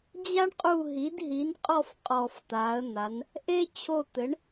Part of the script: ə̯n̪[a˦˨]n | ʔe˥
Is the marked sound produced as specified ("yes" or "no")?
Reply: no